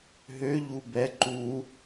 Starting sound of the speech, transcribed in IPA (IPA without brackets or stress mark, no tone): ɦ